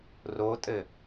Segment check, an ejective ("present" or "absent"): present